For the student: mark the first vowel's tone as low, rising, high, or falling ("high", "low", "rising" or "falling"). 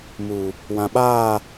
low